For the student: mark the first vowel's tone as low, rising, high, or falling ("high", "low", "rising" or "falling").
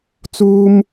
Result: high